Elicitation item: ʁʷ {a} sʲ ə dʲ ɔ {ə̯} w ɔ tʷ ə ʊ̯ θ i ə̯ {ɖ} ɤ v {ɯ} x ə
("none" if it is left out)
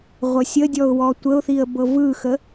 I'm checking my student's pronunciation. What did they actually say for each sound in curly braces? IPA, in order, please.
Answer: ə, ʊ̯, b, ɯ

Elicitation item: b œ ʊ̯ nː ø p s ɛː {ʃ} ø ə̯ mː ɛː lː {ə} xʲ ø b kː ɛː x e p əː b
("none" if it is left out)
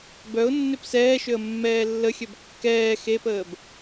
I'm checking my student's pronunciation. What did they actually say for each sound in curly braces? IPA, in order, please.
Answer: ʃ, ə

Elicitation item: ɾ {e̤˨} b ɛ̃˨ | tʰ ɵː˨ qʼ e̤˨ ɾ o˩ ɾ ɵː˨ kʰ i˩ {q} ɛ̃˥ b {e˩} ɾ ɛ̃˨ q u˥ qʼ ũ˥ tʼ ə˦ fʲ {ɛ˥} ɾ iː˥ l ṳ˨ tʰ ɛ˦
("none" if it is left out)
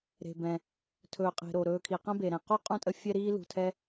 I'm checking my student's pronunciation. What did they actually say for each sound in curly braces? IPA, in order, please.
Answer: e̤˨, q, e˩, ɛ˥

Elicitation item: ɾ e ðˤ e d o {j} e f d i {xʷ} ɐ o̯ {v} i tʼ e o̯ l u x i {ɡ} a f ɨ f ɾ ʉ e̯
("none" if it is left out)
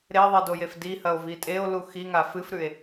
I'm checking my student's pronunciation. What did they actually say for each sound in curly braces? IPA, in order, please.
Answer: j, h, v, ŋ

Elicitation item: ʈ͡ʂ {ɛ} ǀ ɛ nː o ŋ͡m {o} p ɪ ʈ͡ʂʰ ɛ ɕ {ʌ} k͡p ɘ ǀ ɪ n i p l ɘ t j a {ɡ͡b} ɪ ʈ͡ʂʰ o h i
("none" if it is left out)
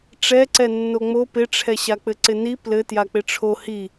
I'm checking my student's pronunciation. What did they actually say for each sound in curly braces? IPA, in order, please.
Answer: ɛ, o, a, k͡p

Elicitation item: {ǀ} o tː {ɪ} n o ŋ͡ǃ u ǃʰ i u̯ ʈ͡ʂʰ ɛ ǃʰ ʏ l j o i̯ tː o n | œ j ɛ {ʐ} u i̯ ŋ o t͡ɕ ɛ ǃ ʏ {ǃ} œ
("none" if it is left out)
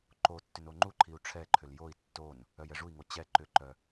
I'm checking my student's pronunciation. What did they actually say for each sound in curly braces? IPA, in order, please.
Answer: ǃ, ʏ, ʐ, ǃ

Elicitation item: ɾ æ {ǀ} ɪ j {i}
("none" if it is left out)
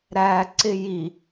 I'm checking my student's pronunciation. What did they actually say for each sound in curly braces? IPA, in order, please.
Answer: ǀ, i

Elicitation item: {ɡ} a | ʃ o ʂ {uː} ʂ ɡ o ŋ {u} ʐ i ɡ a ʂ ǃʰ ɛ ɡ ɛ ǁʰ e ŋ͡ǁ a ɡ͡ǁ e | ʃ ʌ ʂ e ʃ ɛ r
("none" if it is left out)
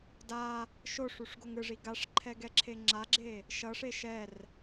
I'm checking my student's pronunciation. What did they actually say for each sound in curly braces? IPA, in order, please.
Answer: d, u, ɯ

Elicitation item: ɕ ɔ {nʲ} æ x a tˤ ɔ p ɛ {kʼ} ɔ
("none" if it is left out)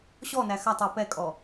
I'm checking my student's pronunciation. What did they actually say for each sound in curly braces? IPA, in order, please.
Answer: n, kʼ

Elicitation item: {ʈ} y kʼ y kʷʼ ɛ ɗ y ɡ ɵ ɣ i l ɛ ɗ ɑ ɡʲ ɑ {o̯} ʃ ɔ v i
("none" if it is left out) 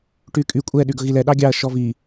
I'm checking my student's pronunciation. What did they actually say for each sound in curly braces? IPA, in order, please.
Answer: ʈ, ɐ̯

